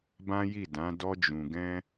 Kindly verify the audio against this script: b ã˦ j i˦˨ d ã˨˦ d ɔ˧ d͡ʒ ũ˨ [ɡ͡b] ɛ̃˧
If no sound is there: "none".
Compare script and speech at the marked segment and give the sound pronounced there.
ɡ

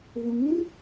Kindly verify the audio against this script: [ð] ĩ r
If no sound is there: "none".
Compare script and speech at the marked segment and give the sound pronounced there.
ð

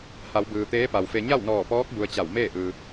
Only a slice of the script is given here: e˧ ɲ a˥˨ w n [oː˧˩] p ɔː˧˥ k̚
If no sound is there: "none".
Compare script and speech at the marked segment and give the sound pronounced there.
ɔː˧˩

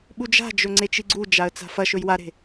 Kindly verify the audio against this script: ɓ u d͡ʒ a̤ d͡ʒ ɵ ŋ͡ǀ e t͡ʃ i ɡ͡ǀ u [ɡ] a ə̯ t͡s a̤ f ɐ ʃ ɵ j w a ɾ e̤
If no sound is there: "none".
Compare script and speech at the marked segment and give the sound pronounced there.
d͡ʒ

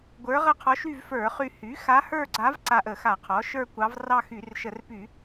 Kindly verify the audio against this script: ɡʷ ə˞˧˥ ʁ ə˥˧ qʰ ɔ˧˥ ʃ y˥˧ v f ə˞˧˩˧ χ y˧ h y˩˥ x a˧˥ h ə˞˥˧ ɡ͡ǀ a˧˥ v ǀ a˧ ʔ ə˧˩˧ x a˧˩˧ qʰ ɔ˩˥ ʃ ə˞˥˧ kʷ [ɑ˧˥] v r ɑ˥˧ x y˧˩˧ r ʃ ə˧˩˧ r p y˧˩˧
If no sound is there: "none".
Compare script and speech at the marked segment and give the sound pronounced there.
ɑ˧˥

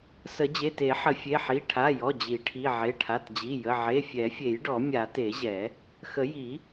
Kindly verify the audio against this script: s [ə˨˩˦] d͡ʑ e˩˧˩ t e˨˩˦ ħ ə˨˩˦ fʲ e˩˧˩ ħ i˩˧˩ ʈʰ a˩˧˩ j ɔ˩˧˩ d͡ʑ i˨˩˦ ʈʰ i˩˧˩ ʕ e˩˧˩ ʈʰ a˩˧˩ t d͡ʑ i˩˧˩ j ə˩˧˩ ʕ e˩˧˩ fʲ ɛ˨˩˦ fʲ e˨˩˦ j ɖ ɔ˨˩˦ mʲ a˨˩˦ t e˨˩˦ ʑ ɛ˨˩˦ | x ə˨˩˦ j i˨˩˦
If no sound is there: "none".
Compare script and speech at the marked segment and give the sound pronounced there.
ə˨˩˦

